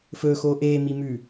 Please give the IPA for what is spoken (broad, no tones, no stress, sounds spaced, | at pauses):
f ɵ x o ʔ e m i m ʉ